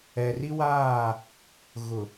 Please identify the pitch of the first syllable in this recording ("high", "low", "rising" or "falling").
low